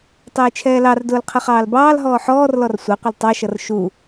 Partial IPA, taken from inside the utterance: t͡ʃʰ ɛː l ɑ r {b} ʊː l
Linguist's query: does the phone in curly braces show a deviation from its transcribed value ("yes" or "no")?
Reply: yes